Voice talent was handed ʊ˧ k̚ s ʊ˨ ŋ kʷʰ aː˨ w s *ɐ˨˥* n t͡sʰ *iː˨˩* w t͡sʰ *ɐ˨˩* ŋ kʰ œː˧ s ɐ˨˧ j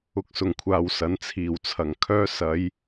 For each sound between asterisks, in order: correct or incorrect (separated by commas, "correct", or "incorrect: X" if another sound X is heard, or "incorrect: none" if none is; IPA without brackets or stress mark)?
incorrect: ɐ˨˧, correct, correct